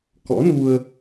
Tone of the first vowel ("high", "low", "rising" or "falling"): rising